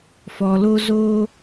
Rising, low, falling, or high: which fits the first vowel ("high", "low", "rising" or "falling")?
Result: low